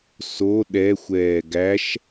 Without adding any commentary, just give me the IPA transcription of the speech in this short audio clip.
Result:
s o ɗ ɛ xʷ ɛː ɡ æ ʃ

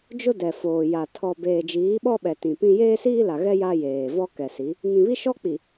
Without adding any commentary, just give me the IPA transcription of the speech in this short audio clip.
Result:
d͡ʒ ʊ˦ d ɛ˨ f oː˨ j a˨ tʰ ɔ˨ b eː˨ d͡ʒ iː˨˦ ɓ ɔ˦ ɓ ɛ˨ t ĩ˨ p ĩ˦ j eː˦ s iː˦ l a˨ ɣ ɛ˦ j a˦ j eː˨ v ɔ˦ k ɛ˨ s i˨˦ | ŋ ĩ˨ β i˦ ʃ ɔ˦ k͡p i˨

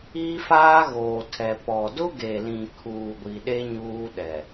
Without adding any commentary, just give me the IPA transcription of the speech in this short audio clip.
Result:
i˦ f aː˦ ɣ oː˨ tʰ ɛ˨ p ɔ˨ d ʊ˦ ɡ e˨ l ĩ˨ kʰ uː˨ ɡʷ i˨ ɗ e˦ ɲ uː˦ ɗ ɛ˨

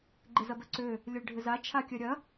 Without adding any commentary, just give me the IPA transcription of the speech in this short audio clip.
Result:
ɡ͡ǃ ɪ z ɐ b œ ǀ ø | lʲ œ ɭ ɖʱ ɪ z a t͡ʃʰ a kʲ œ ɾʲ ɐ

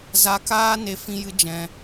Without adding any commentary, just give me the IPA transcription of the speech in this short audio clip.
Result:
z a˧ k aː˦ n e˦ f ĩ˦ j ɨ˦ d͡ʒ ɛ̃˧

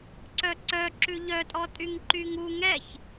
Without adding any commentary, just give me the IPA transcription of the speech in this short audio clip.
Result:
ǀ œ ǀ œ ǁ ʉ ʎ œ tʼ ɔ tʼ y ŋ ǃ y ŋ u ŋ ɛ ç

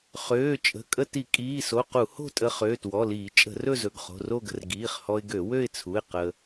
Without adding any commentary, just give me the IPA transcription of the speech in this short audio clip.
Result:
χ øː˩˧˩ t͡ʃʼ ə̤˩˧˩ kʼ ə˥˧ t i˧˩˧ kʼ iː˩˧˩ s o˩˧˩ q u˧˩˧ h o̤˥˧ tʼ ə˧ χ øː˩˧˩ t w ɔ˩˧˩ l iː˧˩˧ t͡ʃʼ ə̤˧˩˧ r ɵ˥˧ z ɵ˩˧˩ ɡ χ o̤˩˧˩ r o˥˧ ɡ ə̤˧ r ɡ iː˩˧˩ χ h ɔ˧ ɪ̯ ɡ ø˧˩˧ w ø˥˧ ɪ̯ t͡sʰ u˩˧˩ ɪ̯ q ə˧

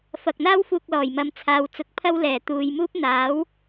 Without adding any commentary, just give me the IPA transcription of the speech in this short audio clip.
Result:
f ɐ˨ k̚ n̪ aː˥ w f uː˨ k̚ l ɔː˨˩ j m ɐ˨˧ m t͡sʰ aː˨ w t͡s ʊ˨˥ k̚ pʰ ɐ˥ w l ɛː˨˩ t̪ uː˨ j m uː˥ p̚ n̪ aː˨˥ w

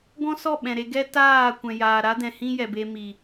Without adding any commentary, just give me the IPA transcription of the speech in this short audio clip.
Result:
ɡ ɔ̃˦ s ɔ˦˨ ɓ ɛ̃˨ ɾ e˧ ɡ ɛ˦ t aː˦˨ kʷ ɛ̃˨ j aː˨ ɾ a˦ d ɛ̃˨ h ĩ˦ j ɛ˨ b e˧ m i˨

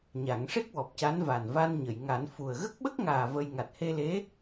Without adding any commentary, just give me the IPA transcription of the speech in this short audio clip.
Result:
ɲ a˨˩˦ ŋ ʂ e˦˥ k̚ w ɔ˨˩ p̚ c a˧˥ n v a˨˩ n v a˧ n ɲ ə˨˩˨ j ŋ a˨˩˦ n f u˨˩ ə̯ ɣ ə˦˥ k̚ ɓ ə˦˥ k̚ ŋ aː˨˩ v ə˧ j ŋ a˨˩ t̚ h e˧ l e˧˥

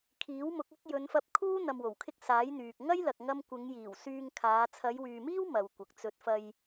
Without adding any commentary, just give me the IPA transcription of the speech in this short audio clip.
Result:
kʰ iː˨˥ w m ʊ˨˥ k̚ ɐ˥ k̚ j ɵ˨˧ n f ɐ˧ p̚ kʰ uː˥ n̪ ɐ˧ m w o˨˩ w kʰ ɪ˥ k̚ s aː˨˥ j n̪ yː˨ k̚ ŋ ɐ˥ j l ɐ˧ k̚ ŋ ɐ˥ m kʷ ɪ˨˧ ŋ j iː˨˩ w s yː˧ ŋ kʰ aː˨˧ t͡sʰ ɐ˨˧ j w yː˨ m iː˥ w m ɐ˨ w kʷ ɐ˨ k̚ t͡s ɵ˨˥ t̚ f ɐ˧ j

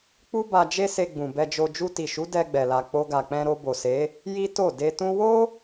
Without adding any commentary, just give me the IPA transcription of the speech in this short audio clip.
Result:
k͡p u˦ b a˧ d͡ʒ e˦ s e˧ ɡ͡b ũ˨ b ɛ˧ d͡ʒ o˧ d͡ʒ u˧ t i˨ ʃ u˨˦ d ɛ˧ ɡ͡b ɛ˨ l a˨ k͡p o˧ ɡ a˨ k͡p ɛ̃˧ ɾ o˧ b o˨ s e˨˦ | j i˦ t o˦˨ d e˧ t ũ˦ w o˦

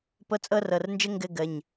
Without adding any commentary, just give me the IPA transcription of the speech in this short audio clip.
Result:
p ɤ˧˥˧ t͡sʼ ɤ˥ r ɤ˩˧˩ r n d͡ʒ ɘ˥ ŋ ɡ ɘ˥ ɡ ə˩˧˩ ɲ

